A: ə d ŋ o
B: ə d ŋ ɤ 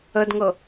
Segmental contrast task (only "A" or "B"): B